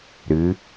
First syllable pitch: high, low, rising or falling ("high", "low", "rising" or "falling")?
rising